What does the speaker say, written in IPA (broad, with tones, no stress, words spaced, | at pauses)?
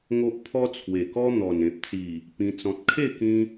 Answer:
ŋo˦ʔ pʰɔ˦t͡sʰwe˨˩kɔ˦ n̪ɔ˨˩nẽ˨p̚t͡si˨˩ | pĩ˧ t͡sɔ̃˨t̚kʰe˥˧kĩ˧